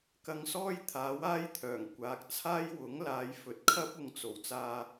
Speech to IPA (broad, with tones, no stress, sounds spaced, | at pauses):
k ɐ˧ ŋ s ɔː˥ j t̪ʰ aː˨˥ w aː˥ j t̪ʰ œː˨˩ ŋ kʷ aː˨ k̚ t͡sʰ aː˥ j w ʊ˨˥ ŋ l aː˨˧ j f ɵ˨˥ t̚ kʰ ɐ˥ p̚ ʊ˨˧ ŋ t͡s o˨˩ w t͡s aː˧